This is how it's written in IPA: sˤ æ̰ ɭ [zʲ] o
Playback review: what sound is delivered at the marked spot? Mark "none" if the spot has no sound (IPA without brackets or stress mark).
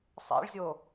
zʲ